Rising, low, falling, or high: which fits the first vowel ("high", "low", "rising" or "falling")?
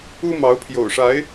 high